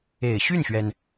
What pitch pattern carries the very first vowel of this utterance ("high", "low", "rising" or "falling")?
low